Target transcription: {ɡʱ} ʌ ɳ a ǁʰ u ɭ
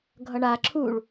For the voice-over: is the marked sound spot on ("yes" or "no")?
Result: yes